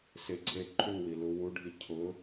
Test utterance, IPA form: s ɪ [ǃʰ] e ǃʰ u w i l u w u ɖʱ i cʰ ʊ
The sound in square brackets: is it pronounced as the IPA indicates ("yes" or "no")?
no